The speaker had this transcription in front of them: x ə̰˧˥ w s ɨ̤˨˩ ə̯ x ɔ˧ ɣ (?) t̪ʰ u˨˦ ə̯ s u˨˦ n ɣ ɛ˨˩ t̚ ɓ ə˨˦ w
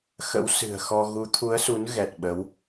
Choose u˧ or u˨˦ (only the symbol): u˨˦